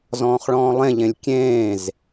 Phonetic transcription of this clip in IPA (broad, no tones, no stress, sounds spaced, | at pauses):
z ɔ̃ː χ ɭ ɔ̃ː lˠ ẽ ʎ ẽ lʲ kʲ ẽː z